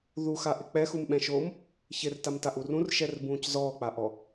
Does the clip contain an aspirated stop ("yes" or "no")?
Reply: no